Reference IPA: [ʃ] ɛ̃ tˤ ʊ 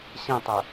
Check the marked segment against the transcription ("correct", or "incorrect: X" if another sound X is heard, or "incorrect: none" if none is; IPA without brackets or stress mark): incorrect: ɕ